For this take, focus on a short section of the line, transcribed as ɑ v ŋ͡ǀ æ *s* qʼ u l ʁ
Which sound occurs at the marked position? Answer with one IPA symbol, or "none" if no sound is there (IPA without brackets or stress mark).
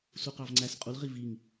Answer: s